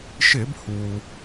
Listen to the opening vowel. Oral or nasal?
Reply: oral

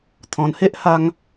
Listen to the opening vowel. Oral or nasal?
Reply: nasal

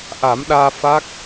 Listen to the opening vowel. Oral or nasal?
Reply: oral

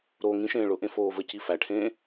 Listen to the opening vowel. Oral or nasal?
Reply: oral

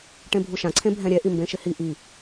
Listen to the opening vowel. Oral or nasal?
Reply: nasal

